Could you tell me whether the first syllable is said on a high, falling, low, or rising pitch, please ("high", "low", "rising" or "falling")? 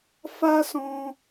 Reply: high